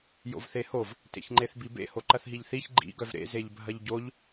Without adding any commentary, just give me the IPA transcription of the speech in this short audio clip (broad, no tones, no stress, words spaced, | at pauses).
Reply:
jo̰vθehov | tḛçŋ͡ǃeθbibḛ hoǃɐθɦiʎθiç ɡ͡ǃḭ ɡœvɾḛ zeʎbʱɐʎɟoʎ